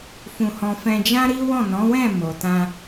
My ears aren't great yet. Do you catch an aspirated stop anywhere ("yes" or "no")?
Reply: no